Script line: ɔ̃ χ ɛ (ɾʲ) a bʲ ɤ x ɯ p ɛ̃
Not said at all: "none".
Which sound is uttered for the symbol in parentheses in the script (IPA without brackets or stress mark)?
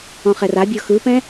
r